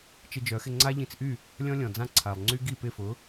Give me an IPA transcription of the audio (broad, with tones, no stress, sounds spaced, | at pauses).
t͡ʃ ɪ˧ d͡ʒ œ˩˥ x ɪ˧ ŋ͡ǀ a˥ ʎ ĩ˧ t͡s ʔ y˥˩ | lʲ ɔ̃˥ lʲ ɔ̃˩ d͡z ã˥˩ ǀʰ a˩ lˠ ŋ͡ǀ y˥ ɡ i˥˩ p ɪ˥˩ f ʊ˩˥